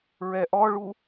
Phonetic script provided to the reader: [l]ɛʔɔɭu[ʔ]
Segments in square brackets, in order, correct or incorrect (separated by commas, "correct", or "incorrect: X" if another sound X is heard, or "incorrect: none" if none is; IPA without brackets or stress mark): incorrect: ɹ, incorrect: none